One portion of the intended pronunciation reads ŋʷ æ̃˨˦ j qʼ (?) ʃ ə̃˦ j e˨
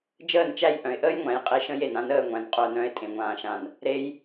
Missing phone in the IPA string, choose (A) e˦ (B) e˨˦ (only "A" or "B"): A